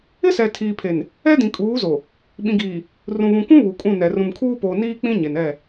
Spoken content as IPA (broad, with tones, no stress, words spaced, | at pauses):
ɪ˦sɛ˨tʰiː˨pʰe˨n | ɛ˦dĩ˨kʼuː˨˦zo˨ | ɓĩ˨ɡiː˨ | rũ˨βũ˨kʷũ˦ βu˨kʼũ˦˨nɛ˨ rũ˨mkʰuː˦poː˨ niː˦k͡pĩ˦ ɲe˨nɛ˦˨